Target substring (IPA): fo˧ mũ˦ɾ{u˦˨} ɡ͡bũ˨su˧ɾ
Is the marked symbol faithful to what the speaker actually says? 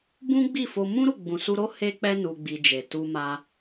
yes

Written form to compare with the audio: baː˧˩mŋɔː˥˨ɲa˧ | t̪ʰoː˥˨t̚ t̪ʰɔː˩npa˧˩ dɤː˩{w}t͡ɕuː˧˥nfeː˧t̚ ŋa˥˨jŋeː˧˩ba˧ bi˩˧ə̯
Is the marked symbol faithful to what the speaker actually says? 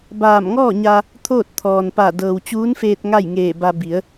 yes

